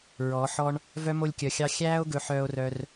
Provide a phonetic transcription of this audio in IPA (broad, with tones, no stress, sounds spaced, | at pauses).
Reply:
ɹ ɔ˨˦ ħ ɔ˦ ɳ | v œ˦ m o˧ lʲ kʲ œ˨ xʲ ɑ˧ xʲ æː˦ o̯ ɡ ɵ˧ ħ œː˧ o̯ r œ˧ r